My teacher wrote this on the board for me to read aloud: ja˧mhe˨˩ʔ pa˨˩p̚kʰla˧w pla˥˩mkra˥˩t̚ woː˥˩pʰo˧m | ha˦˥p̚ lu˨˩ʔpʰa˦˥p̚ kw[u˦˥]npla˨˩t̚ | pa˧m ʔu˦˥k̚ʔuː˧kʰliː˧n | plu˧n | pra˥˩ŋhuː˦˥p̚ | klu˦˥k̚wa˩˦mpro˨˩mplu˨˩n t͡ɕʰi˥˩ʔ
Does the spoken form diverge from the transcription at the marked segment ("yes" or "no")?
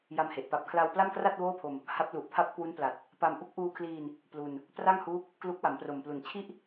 no